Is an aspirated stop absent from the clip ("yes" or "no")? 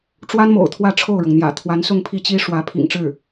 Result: no